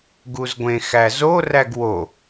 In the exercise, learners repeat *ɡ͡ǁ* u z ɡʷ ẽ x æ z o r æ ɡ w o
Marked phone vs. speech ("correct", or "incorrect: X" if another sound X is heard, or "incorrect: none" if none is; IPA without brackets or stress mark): incorrect: ɡ